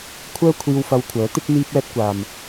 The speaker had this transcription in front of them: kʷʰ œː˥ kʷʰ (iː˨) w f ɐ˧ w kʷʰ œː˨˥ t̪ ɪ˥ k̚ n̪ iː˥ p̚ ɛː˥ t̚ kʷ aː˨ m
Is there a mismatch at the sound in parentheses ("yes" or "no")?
yes